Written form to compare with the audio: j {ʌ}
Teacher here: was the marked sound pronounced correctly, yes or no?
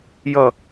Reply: yes